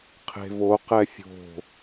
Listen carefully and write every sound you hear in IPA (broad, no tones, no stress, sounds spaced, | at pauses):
qʰ e̤ v o q ɛ fʲ o̤